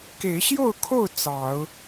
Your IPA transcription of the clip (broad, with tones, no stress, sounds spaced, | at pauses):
k e˨˦ ɪ̯ ɕ j o˥˨ ʊ̯ kʰ o˥˨ ʊ̯ t͡s ɑ˨˦ ʊ̯